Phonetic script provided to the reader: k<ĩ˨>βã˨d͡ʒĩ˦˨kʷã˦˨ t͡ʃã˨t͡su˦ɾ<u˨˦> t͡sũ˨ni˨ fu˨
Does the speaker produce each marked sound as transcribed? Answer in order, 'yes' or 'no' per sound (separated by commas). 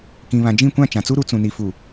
yes, yes